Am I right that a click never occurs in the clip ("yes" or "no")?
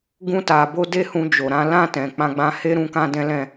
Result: yes